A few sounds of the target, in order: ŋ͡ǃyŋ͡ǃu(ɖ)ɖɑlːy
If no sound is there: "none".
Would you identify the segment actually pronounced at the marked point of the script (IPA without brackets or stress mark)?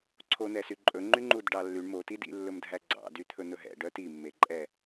d